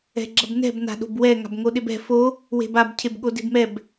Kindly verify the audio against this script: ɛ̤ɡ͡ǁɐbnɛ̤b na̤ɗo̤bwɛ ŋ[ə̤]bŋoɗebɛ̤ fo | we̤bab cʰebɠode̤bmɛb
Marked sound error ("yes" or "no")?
yes